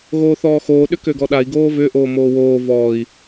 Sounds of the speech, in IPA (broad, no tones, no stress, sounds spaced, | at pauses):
ɣ oː θ ɔː x oː ɗ ʏ k ø ɡ ɔ ɗ a i̯ ɡ oː v ʏ ʔ oː m oː w oː v ɔː i̯